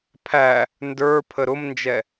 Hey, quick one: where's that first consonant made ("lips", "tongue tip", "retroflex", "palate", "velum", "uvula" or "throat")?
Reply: lips